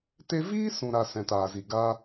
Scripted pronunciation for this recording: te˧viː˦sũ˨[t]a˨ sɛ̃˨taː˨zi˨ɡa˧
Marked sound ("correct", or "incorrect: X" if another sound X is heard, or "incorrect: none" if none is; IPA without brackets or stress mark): incorrect: ɾ